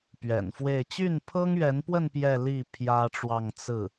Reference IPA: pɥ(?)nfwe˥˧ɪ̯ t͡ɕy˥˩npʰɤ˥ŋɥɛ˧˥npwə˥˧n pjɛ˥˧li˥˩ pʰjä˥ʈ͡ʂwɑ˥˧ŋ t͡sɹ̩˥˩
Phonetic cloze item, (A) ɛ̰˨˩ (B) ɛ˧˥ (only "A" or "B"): A